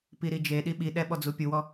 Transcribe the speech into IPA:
p i ɾ i d͡ʒ e ɗ i ɓ i ɗ ɛ ɓ ɔ d͡z u pʲ u w ɔ

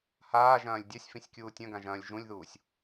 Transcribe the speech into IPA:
h aː ʒ ɐ̃ː lʲ dʲ a sʲ f ĩ sʲ kʲ uː tʲ ɐ̃ ɡ ã ʒ ɐ̃ː lʲ ʒ ũ lʲ ð uː sʲ

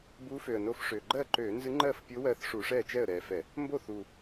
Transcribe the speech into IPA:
b u˧˥ f ø˨˩ ə̯ n o˧˥ f ʂ ø˨˩ ɡ͡ǃ ɜ˥˩ ǃ ø˧˩˧ n z ɨ˧˥ ŋ͡ǃ ɜ˥˩ f pʲ o˧˥ w ɜ˧˥ θ ʂ u˧˩˧ ʂ ɛ˥˩ t͡ʃ ɛ˥˩ ə̯ ɾ ɛ˨˩ f ɛ˧˩˧ | m b o˥˩ θ u˨˩

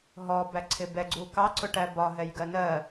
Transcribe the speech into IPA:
ɦ ɔ b æ ǀʰ ɪ b ɛ ɡ͡ǀ u k ɑ ǀ ʊ ʈ æ b ɒ ɦ ɛ j ɡ ɜ n ɜ

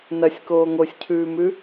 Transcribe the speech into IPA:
n ɐ sʲ k oː ŋ o sʲ cʰ ʉː m ʉ

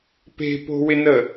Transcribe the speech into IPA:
p e̤ p o̤ w ɪ n ə

